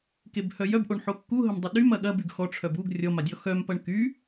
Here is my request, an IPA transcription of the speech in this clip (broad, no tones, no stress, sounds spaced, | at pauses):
k e b h œ j œ b ʔ o ɳ ħ o kː u ɦ ə m dˤ ə ɗ y m ɐ ɠ ɐ b y ɡ x ɔ ʈ͡ʂʰ œ b u ɡ rʲ ɔ m a dʲ ɔ x œ m p ɐ ɳ k y